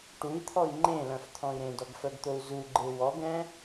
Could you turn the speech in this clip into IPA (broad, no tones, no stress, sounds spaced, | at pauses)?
ʈ u i̯ t̪ʰ ɔ i̯ ŋ͡ǃ ẽ l œ̃ f t̪ʰ ɔ̃ i̯ ɾ ẽ d ɔ ɡ f œ ɡ t̪ o u̯ z u ɡ͡ǃ e w ɔ ɡ ɛ̃